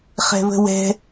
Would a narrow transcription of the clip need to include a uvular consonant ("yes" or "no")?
yes